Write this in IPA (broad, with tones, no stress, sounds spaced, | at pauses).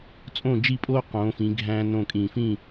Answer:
t͡sʼ õ˥˨ d͡ʒ i˥˨ pʼ oː˥ q õː˨˥ f ĩː˨˥ ɡʱ æ̃ː˥ n õ˥˨ kʼ ĩː˧˩ f ĩ˥˨